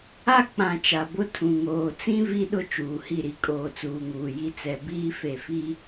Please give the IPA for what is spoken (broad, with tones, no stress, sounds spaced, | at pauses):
a˦ k͡p ã˨ t͡ʃ a˨ b ʊ˦ tʰ ũ˨ ŋ oː˨ t͡s ĩ˦ v i˦ ɗ ʊ˦ t͡ʃ uː˨ h i˦˨ ɾ i˦ kʼ oː˨ t͡s uː˨ ŋ uː˨ j i˦ t͡s ɛ˨ b iː˦ f e˨ f i˦